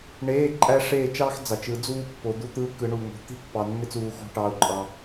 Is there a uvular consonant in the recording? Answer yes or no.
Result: no